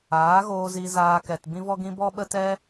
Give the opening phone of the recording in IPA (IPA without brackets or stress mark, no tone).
aː